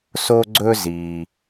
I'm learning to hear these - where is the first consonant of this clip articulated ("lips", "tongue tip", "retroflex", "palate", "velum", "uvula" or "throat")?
tongue tip